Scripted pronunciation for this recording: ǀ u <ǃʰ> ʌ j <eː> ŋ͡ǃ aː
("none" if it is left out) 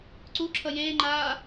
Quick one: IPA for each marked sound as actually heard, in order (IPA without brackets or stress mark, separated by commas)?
ǁʰ, eː